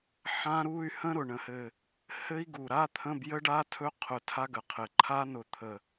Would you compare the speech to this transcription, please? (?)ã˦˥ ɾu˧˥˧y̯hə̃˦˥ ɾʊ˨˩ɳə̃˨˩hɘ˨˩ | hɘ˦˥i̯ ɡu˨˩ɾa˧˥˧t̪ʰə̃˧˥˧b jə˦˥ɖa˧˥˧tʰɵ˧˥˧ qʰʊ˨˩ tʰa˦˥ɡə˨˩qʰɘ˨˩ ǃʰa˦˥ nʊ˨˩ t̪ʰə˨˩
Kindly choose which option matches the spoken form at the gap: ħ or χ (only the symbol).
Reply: ħ